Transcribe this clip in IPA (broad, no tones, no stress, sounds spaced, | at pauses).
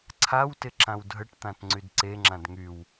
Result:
ǀʰ a w t ɪ ǁ ã w dʱ ə ʈ t̪ ã t ŋ͡ǀ y d ǀ e ŋ͡ǁ ã d ŋ y w